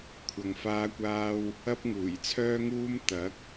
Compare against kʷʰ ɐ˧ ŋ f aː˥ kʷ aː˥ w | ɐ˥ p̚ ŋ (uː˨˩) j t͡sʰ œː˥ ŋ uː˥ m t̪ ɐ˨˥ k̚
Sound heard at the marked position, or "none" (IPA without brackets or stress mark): uː˨˩